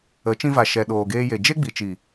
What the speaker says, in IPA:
ə˨˦ t͡ʃ ĩ˧ v a˨ ʃ ɛ˨ ɗ oː˨ ɡ eː˧ j e˨ d͡ʒ e˦ ɡ͡b i˨ t͡ʃ i˨

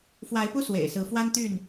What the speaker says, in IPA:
f w a˨˦ ɪ̯ p u˦ s w ḛ˨˩ ɪ̯ s ɹ̩˨˦ f w a˦ n t̪ y˥˨ n

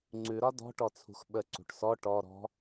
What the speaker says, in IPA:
ŋ͡ǀ ʉ ɾ ɒ d ɔ̤ ʈ ɔ t͡sʰ ṳ x ɓ ə ǀ ṳ ʈ s ɔ ʈ ɔ ɾ ɔ̤

